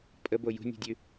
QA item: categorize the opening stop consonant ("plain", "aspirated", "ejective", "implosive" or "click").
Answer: ejective